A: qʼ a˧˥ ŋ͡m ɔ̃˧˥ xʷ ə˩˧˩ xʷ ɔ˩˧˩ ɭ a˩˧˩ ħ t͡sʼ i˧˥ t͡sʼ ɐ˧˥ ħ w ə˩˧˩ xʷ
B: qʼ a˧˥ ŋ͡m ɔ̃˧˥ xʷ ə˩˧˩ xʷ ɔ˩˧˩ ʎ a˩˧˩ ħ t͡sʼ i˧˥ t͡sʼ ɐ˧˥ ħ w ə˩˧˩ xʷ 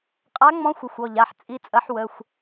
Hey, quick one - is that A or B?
B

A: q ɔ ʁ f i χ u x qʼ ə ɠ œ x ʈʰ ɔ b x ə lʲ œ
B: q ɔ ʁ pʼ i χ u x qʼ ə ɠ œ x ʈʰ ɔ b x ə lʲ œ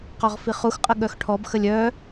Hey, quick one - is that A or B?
A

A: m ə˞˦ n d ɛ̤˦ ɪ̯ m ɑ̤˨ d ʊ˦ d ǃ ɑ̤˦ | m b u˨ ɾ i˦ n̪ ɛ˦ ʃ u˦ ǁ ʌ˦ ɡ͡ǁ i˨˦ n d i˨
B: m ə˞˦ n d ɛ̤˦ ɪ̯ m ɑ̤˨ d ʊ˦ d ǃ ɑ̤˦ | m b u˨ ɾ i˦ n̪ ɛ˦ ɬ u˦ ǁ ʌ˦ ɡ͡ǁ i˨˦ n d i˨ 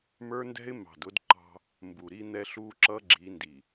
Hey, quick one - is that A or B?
B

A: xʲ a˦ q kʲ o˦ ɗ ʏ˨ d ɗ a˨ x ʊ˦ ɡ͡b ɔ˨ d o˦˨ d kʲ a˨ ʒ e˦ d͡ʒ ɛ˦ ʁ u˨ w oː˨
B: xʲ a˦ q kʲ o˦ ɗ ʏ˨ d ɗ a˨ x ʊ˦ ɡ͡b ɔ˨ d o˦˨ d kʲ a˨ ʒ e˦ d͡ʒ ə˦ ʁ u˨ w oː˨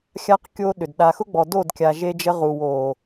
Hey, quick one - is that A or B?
B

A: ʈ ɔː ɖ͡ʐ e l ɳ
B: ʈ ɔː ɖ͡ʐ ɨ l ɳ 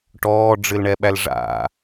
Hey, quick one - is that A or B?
B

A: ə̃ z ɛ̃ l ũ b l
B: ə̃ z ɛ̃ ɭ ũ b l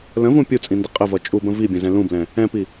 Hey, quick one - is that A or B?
A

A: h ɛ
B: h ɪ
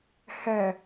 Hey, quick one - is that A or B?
A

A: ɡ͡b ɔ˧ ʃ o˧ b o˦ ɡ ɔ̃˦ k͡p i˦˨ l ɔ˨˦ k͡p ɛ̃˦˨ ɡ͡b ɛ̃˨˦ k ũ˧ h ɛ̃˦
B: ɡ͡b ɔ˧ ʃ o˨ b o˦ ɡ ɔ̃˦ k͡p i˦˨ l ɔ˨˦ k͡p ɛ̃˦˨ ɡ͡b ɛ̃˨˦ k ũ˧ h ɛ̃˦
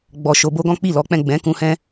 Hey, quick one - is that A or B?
A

